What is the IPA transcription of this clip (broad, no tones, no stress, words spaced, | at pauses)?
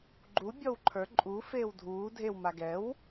ɡ͡ǃu bʲɔwǃʰə˞ ǃʼu feːwdʱuː dʱew maɡɛw